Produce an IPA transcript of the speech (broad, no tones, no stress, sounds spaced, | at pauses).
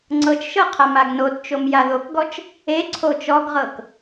ŋ͡ǀ ɤ t͡ʃ ʃ ɤ qʰ a m a ɡ n o t t͡ʃ o m j a ð o k ɡ ɔ t͡ʃ | e ǀʰ o t͡ʃ ɔ ɡ ʁ ɤ k